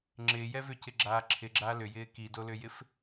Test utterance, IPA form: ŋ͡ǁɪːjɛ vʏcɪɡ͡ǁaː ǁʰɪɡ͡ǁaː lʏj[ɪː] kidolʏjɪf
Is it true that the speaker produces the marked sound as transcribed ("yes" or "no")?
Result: yes